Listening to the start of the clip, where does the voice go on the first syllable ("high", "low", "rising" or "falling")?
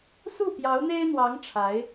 falling